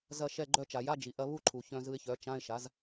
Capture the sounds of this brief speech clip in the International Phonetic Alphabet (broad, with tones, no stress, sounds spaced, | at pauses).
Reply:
z ɐ˧˩ ʃ ɛ˧˩ ɡ͡ǃ œ˧ t͡ʃ a˩ j a˧˥˧ d͡ʒ i˩ ʔ ɐ˧ β u˥˧ ǃʰ u˩ ç œ̃˧ z ɯ˧ ɪ̯ ç œ˩˥ t͡ʃ ã˧˥˧ ɪ̯ ʃ a˩˥ z